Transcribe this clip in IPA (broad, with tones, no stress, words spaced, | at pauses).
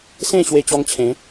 sẽ˥˧ ɕwe˧t͡ɕɔ˧ŋt͡ɕʰẽ˨˦